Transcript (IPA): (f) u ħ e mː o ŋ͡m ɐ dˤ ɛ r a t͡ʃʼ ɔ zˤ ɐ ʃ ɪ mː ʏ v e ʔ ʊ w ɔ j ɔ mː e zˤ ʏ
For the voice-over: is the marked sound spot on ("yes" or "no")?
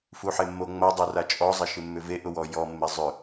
yes